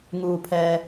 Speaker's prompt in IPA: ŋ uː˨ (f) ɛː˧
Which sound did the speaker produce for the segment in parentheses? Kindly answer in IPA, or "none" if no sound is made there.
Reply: pʰ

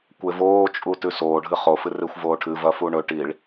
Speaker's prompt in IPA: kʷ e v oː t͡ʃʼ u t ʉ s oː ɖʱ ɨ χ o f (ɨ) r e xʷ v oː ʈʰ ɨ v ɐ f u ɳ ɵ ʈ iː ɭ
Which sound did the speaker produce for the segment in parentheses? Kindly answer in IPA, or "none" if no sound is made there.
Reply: ɨ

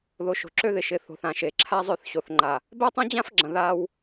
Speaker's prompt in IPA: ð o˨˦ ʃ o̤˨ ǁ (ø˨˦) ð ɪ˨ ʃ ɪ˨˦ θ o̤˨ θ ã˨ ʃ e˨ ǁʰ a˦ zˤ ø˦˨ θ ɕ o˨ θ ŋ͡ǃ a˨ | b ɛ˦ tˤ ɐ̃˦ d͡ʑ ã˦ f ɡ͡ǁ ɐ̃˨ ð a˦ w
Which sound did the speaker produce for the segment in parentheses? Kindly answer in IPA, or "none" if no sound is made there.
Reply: ø˦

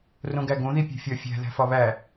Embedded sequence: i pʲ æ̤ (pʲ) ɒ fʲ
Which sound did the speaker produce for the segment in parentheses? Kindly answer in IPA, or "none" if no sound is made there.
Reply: fʲ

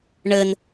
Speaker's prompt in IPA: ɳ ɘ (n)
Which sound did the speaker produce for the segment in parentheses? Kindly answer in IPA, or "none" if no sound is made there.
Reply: n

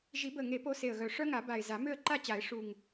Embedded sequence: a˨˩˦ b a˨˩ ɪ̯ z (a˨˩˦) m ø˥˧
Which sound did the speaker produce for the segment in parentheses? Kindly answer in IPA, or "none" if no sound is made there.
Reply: a˨˩˦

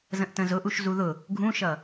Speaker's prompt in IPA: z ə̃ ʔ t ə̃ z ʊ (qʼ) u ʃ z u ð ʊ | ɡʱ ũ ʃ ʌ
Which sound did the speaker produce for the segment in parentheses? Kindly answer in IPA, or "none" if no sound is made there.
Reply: ʔ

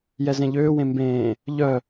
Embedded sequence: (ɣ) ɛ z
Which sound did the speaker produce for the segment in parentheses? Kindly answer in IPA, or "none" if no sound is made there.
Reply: j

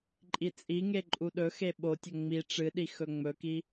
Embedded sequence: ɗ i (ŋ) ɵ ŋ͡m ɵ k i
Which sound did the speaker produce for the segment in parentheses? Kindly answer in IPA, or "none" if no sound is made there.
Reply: x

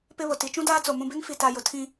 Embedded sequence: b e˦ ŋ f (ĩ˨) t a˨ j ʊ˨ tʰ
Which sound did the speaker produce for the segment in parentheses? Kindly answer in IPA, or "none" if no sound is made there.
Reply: i˨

